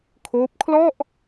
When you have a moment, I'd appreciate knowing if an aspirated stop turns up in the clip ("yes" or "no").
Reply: yes